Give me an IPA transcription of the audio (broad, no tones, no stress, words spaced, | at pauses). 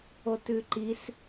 otʉǃis